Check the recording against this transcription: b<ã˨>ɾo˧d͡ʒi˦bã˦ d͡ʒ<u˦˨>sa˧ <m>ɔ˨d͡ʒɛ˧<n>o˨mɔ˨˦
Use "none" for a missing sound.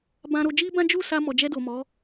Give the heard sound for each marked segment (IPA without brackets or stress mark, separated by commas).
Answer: ã˧, u˦˨, m, d